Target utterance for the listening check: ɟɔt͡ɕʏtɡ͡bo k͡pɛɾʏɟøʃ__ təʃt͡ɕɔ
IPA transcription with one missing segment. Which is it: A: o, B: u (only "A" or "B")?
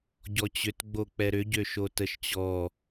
A